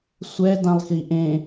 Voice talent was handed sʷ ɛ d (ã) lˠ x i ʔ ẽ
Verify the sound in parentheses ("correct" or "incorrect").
correct